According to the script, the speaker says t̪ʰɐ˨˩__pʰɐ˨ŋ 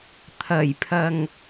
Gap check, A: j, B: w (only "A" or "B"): A